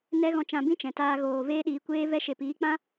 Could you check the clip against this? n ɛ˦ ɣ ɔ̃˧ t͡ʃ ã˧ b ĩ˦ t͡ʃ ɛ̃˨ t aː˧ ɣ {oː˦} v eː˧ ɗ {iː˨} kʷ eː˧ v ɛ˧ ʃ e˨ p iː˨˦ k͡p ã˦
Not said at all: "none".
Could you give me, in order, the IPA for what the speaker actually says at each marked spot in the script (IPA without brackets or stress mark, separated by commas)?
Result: oː˨, iː˨